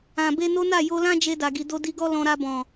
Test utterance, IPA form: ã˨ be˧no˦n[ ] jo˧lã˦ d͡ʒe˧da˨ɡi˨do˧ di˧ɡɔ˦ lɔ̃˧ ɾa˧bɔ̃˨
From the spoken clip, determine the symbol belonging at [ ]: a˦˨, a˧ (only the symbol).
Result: a˦˨